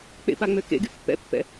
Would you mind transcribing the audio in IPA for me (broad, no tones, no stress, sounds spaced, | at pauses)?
k͡p ḛ p a ŋ͡m ø k ḛ ɡ y pː ɛ̰ pː ɛ̰